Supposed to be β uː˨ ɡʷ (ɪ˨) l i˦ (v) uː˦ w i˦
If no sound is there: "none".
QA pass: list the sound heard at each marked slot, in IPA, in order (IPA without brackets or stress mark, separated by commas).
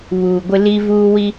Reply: ɪ˦, v